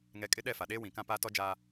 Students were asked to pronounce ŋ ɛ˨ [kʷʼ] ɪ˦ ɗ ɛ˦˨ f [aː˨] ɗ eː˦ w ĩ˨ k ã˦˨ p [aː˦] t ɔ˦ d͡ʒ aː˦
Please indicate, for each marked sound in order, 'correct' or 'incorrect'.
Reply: incorrect: kʼ, incorrect: a˨, correct

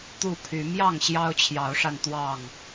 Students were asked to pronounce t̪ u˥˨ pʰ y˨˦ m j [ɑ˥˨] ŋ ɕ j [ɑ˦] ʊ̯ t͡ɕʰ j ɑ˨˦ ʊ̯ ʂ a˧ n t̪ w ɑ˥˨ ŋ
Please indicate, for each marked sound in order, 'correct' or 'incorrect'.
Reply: correct, correct

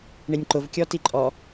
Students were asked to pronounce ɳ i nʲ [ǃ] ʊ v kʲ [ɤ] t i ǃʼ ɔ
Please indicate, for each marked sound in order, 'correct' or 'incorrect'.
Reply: correct, incorrect: ɔ

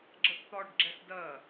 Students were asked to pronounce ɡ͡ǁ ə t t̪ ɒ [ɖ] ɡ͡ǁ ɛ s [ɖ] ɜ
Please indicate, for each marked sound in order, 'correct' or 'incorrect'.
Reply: correct, incorrect: d

